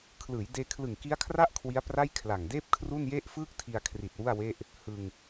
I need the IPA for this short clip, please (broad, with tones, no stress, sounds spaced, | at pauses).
kʰ l ɯː˩˦ j d eː˧ kʰ l ɯ˨˩ ŋ k i˦˥ a̯ kʰ r a˥˩ ʔ kʰ w i˦˥ a̯ p r a˥˩ j kʰ l a˨˩ ŋ d eː˥˩ p̚ kʰ r u˥˩ n j e˥˩ ʔ f ɯː˥˩ k̚ tʰ i˧ a̯ kʰ r i˨˩ t̚ w u˥˩ a̯ w e˥˩ ʔ | h ɯ˧ ŋ